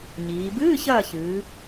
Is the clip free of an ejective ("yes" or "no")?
yes